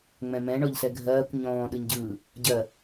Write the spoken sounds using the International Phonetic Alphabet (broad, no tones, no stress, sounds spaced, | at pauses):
ŋ͡m ɛ̃ m ɛ̃ ɳ ɔ ʎ s ɛ ɡʱ ɜː kʷ ɲ ɔ̃ː ɗ ɯ ɲ ɟ ɯː | ɟ ɜ